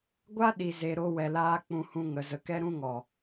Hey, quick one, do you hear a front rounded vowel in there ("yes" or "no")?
no